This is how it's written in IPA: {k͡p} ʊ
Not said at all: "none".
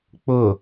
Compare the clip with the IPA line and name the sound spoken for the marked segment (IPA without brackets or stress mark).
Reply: k͡p